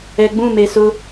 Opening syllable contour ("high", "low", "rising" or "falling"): low